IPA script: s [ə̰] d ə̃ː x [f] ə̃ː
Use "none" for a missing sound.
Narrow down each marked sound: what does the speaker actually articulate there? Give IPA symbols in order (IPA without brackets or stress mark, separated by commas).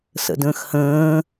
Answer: ə̰, h